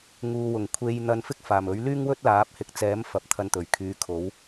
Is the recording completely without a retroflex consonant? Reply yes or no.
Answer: yes